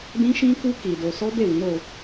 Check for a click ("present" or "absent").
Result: absent